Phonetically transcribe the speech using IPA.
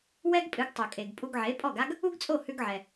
w ɛ˥ ɡ pʼ ɨ˩˥ ɡ tˤ o˩ kʼ e˩ ɡ pʼ u˧ ɡ ʕ e˩˥ pʼ ɔ˥˩ ɡ a˥ ɡ | u˥ ɡ t͡sʼ o˥˩ h ʉ˧ ɡ ʕ ɛ˩

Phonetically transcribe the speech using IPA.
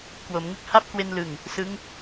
k w o˩˦ m ŋ ɯ˦˥ k̚ h a˦˥ p̚ k w e˧ n l ɯ˨˩ ŋ | s ɯ˦˥ ŋ

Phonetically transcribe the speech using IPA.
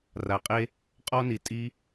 r a˨ qʼ e˧ | qʼ ɔ˧ n i˨ tʼ i˧

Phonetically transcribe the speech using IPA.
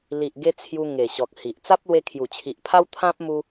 l i˨ ʔ ɡ e˧ t͡sʰ j u˧ ŋ e˨˩ ɕ ɔ˨ k̚ h i˨ ʔ t͡s a˦ p̚ l w e˧ kʰ j u˨˩ t͡ɕʰ i˨ ʔ pʰ a˦ w t̪ʰ ã˦ p̚ m u˧

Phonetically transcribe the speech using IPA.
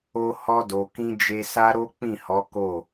o˧ h ɔ˧ d o˨ k ĩ˧ d͡ʒ e˧ s a˦ ɾ o˦ k͡p ĩ˦˨ h ɔ˨˦ k o˦˨

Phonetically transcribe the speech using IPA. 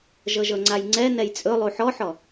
ʒ ɤ ʒ ɤ ŋ͡ǀ a j ŋ͡ǀ ɛ n ɛ j t͡sʼ ɵ lˠ u ħ ɔ ħ ɔ

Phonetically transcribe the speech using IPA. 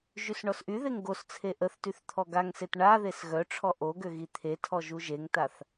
ʒ y s ɳ ɔ s ʔ y ð e ŋ ɡ o s t͡sʰ e ʔ ə θ t y θ t̪ʰ ɔ ɡ a ŋ s e t ɳ a ð e s ɣ œ ʈ͡ʂʰ ɔ ʔ o ɡ ø ɣ i t̪ʰ e tʰ ɔ ʒ u ʒ e ŋ t a θ

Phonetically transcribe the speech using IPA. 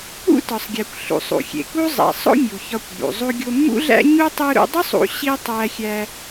ṵ˥ t ɒ˩ sˤ ɡʲ æ˩ kʷ ɬ ṵ˩ sˤ ṵ˩ xʲ ḛ˩ k u˥ zˤ æ̰˩ sˤ o̰˥ mʲ u˩ ç ɒ˧ kʷ b ṵ˩ zˤ u˧ ɡʲ o˧ mː ṵ˥ ɮ æ̰˥ ɲ u˥ tˤ u˥ ɾ ṵ˥ dˤ u˥ sˤ ṵ˧ ɕ i˥ tˤ æ˧ xʲ æ˧

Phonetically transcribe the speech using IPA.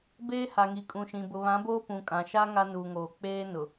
b eː˦ h a˨ ŋ i˨ kʼ ũ˨ ʃ ĩ˨ b ʊ˨ β ã˨˦ b oː˦ p ũ˨ kʼ ã˨ ʃ a˦ ŋ a˦ n uː˨ ŋ oː˨ k͡p eː˦ n ʊ˨

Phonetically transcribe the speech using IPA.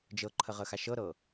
d͡ʒ ɤ ǃʰ ə ʁ ə x a ʃ ɤ ɾ ɤ

